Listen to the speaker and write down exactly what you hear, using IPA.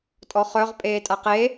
tʼ ɔ χ œ ʁ pʼ eː tʼ a q e

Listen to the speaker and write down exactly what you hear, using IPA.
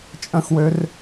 t͡ʃʼ ə̃ x w ø r

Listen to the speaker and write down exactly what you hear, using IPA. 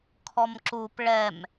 kʰ ɔ m ǁ u p ɭ ɛ m

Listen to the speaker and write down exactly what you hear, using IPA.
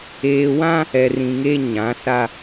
eː˨ w ã˦ | ɛ˨ r ĩ˨ ŋ e˦ ɲ ã˨˦ s a˦

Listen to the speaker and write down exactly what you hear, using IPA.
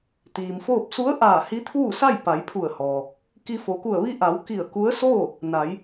t̪ iː˩ m f oː˥˨ p̚ s u˧˥ ə̯ ʔ aː˧˩ h i˧˥ t̪ʰ uː˥˨ s a˥˨ j p a˩˧ j pʰ u˧˩ ə̯ h ɔː˩ | k i˧ f o˩ k u˧˩ ə̯ ʋ i˧ ʔ a˩˧ w k i˧˩ ə̯ k u˧˥ ə̯ s oː˥˨ | n a˩˧ j

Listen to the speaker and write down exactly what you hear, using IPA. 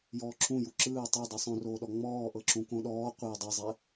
j ɔː ǁʰ ũ j u ǁ ɯː tˤ ɤ dˤ u sˤ õ r oː ɗ ɔ ŋ͡m ɔː ʔ ɤ ǁ ũ k õ ɗ ɔː qʷ e dˤ ɛ zˤ ɛ

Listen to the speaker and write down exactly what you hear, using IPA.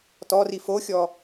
t ɔ r i f o xʲ ɔ

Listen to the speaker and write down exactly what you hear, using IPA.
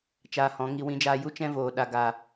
t͡ʃ aː˧ h ɔ̃˨˦ ŋ i˧ w ĩ˧ d͡ʒ aː˧ j u˦ t͡ʃ ɛ̃˦ v oː˨ ɗ a˨ ɡ a˨

